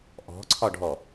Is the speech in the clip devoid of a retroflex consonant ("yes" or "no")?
no